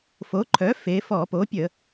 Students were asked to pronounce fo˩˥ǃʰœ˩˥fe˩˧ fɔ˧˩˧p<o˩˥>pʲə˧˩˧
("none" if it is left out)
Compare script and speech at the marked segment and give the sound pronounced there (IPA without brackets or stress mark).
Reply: o˩˥